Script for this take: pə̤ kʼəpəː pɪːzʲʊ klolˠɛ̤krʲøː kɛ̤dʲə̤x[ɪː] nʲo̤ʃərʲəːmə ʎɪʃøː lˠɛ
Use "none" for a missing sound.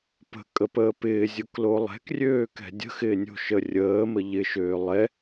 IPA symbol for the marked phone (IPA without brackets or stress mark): ɪː